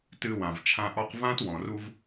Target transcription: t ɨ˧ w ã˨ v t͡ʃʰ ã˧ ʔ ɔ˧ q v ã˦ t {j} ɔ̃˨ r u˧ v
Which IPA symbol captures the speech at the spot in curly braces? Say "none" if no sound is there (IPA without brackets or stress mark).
w